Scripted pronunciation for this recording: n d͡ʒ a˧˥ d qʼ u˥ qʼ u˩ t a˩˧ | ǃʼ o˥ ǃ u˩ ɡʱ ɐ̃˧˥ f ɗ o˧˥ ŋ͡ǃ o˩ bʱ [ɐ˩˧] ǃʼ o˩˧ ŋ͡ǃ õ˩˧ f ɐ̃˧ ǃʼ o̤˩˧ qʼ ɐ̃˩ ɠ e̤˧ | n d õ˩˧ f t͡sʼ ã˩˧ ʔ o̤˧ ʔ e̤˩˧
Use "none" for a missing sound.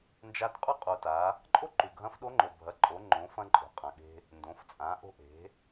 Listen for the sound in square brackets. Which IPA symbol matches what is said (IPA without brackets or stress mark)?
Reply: ɐ˩˧